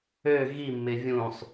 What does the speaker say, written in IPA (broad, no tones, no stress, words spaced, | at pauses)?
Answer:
ø ɣimːɪ vʲũsˤ